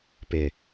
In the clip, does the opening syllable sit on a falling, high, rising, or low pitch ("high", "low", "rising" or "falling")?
low